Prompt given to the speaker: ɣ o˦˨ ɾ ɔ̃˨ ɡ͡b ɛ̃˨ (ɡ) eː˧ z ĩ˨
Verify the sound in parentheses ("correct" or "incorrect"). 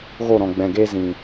correct